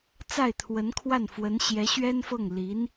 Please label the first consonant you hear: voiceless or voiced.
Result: voiceless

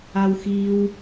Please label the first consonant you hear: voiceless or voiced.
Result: voiced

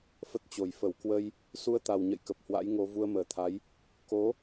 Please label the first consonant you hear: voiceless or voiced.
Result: voiceless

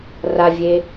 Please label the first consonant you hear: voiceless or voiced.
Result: voiced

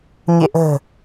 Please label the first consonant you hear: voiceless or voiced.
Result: voiced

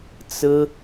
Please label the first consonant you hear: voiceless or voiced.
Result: voiceless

